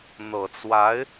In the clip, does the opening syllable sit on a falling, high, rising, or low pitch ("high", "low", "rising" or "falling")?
low